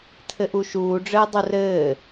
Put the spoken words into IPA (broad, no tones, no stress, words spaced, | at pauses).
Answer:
tʰɘʔuʃuːɖ͡ʐɘː dˤurɘː